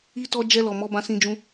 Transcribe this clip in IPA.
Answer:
i˧ t ɔ˧ d͡ʒ ɛ˧ l ɔ˨ m ɔ˨˦ b ã˧ s ĩ˧ d͡ʒ ũ˦

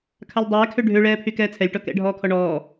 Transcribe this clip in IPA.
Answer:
kʰ a lʲ dˤ ɛː kʰ ø ɖʱ ø ɭ ɛː pʰ y k ɛː t͡sʰ ɛ lʲ ʈ ɔ k ɛ̰ ɖʱ ɔː kʰ ɔ ɳ ɔː

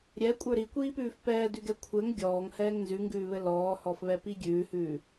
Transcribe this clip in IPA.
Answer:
ɾʲ ɛ kʷʼ ə˞ ɾ i kʷ iː p ʉː f p ɛː d ʉ ɡ ɛ kʷʰ ɘ ŋ ɡʲ ɔː ŋ h ɛː ŋ n z ʉ ŋ ɡ ʉː β ɘ l ɔː h ɔ f β ɛ p i ɡʲ ʉː h ʉː

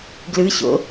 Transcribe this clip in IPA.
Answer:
ɡ l ɯ ɕ o̰

